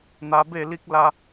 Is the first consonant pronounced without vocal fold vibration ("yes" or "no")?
no